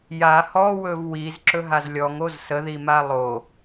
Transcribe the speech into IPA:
ja hɔwɵv wizǁɵɦaz lʲɔŋoz səðima lˠo

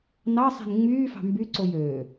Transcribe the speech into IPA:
nɑsˤe̤n ŋ͡myːfɑ̤ mbyǀoj øː

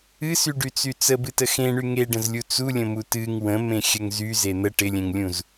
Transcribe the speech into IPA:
ɨsyɖyt͡sy t͡səbɨtə xẽɳy ŋeɖə̃zlʲu t͡sulʲə̃mu tɨŋ wə̃mẽxʲəŋ zyze n̪ə ʈɪlʲẽŋlʲũz

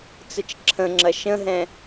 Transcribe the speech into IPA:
t͡sət͡ʃǁʰə̃ŋ͡ǁɐ ʃə̃ɦɛ̃

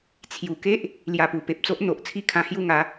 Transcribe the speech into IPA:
t͡sʰju˨˩ke˦ʔ | lja˧pu˨˩pe˨p̚t͡so˦ʔ n̪o˨ʔ t͡sʰi˥˧kʰã˧ hju˥˧ŋa˨˦

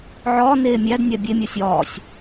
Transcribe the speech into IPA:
ʕɒːneː mʲæd nʲæbʲe mʲɒsʲɒːsʲ

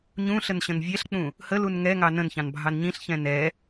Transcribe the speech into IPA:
ɲũɬənɕə̃n vʲɛɬk͡pũ | həlun ŋɛŋɑ nə̃nçɑ̃nbʱɑn ɲĩɬçɛ̃ nɛ

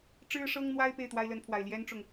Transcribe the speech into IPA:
ʈ͡ʂɻ̩˥ʂɤ˥ŋn̪wa˥ɪ̯ pe˥˩ɪ̯t̪wa˥ɪ̯lə˧˥npʰwa˨˩ɪ̯ ljɛ˥nʈ͡ʂʊ˨ŋ

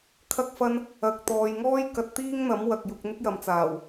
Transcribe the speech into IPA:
kʰɐ˧k̚fɐ˧n | ɐ˨k̚ t̪ɔː˨jŋɔː˥j kɐ˧t̚t̪iː˥ŋn̪ɐ˨˥mwɐ˨k̚ jʊ˧k̚n̪ɪ˥k̚jɐ˨mt͡saː˨˩w

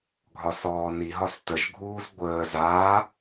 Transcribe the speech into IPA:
ɡʱɒsɔːniɦɒs təʒɡʱuːz ɡʷəːz aː

